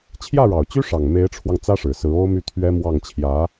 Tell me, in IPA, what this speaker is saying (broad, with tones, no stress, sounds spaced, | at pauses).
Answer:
t͡ɕʰ j ä˥˩ ɻ ɑ˨˩ ʊ̯ t͡ɕ y˥ ʂ ɑ˨˩ ŋ m e˧˥ ɪ̯ ʈ͡ʂʰ w ɑ˧ ŋ t͡s ä˥ ʂ ɻ̩˨˩ s ɹ̩˧˥ o˥ ʊ̯ m y˥˩ t̪ʰ ɥ ɛ˥ m w ɑ˥˩ ŋ t͡ɕʰ j ä˧˥